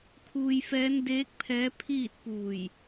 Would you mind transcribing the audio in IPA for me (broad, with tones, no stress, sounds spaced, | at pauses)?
kʰ uː˧ j f ɛː˧˥ n d eː˧˥ k̚ pʰ ɛː˧˥ pʰ iː˥˨ t̚ p uː˧˩ j